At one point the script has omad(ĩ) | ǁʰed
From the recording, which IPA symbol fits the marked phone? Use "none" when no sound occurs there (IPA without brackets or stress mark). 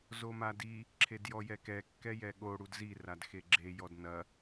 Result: i